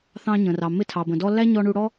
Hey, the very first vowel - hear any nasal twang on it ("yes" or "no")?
yes